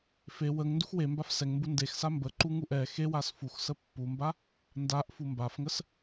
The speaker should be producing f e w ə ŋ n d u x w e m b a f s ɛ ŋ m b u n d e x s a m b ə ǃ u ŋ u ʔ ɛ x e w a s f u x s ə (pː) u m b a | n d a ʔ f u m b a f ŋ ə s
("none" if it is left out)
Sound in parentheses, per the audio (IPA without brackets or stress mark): pː